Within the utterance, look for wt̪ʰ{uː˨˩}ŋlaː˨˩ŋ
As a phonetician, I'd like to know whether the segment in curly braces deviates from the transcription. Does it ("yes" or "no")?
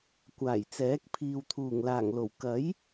no